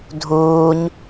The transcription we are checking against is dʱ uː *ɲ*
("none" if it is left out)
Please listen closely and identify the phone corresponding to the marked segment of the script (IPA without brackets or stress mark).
ɲ